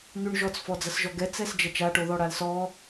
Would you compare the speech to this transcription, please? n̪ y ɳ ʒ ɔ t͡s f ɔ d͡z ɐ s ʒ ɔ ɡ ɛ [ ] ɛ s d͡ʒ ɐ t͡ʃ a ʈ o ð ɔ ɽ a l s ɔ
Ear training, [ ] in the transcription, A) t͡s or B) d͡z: A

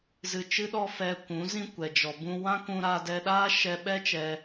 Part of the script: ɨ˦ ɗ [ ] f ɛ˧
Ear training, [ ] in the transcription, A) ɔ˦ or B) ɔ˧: A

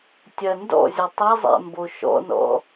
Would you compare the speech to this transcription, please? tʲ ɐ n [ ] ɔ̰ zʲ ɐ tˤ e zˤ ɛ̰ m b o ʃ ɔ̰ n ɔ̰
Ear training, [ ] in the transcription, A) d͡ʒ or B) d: B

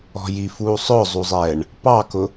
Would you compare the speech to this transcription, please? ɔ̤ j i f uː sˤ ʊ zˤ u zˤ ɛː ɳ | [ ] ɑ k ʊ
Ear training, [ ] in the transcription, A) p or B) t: A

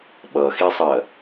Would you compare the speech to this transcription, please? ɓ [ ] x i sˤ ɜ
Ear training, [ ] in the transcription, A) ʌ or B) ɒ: A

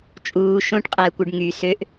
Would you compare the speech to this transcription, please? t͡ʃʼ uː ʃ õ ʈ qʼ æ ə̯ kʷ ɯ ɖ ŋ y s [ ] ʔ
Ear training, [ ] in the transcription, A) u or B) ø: B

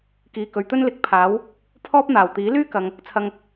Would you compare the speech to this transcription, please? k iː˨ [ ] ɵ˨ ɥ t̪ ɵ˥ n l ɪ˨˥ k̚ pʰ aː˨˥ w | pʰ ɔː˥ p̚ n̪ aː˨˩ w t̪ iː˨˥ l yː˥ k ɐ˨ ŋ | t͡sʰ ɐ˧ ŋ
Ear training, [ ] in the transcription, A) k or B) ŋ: A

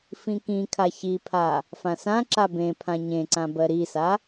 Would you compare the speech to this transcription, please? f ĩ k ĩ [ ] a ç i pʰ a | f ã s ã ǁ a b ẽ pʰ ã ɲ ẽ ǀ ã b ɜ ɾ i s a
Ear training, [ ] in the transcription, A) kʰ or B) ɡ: A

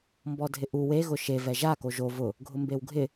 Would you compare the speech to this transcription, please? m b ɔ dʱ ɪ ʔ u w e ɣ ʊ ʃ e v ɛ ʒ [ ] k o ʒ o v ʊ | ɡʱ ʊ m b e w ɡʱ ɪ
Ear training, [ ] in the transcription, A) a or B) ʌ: A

